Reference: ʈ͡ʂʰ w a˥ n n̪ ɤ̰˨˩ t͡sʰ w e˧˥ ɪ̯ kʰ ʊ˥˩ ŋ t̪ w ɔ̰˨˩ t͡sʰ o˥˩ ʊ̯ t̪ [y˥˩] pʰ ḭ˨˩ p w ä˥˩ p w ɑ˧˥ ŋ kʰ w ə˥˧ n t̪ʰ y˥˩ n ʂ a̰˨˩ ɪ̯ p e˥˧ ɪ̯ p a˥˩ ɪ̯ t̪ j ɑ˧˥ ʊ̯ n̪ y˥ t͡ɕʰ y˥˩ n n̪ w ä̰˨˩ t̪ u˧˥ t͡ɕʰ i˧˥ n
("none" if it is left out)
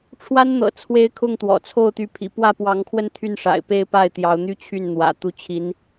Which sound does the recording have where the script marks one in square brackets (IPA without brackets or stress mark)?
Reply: y˧˥